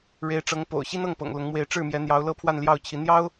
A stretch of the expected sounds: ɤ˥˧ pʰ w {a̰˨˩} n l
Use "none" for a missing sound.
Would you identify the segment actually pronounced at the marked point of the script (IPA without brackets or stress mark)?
a˥˧